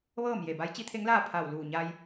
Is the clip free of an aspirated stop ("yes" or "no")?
no